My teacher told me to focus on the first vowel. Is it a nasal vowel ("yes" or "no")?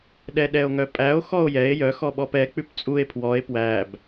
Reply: no